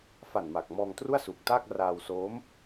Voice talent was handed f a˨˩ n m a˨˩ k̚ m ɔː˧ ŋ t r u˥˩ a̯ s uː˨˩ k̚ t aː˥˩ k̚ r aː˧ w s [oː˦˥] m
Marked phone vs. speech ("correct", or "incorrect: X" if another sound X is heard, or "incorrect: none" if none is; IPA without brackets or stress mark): correct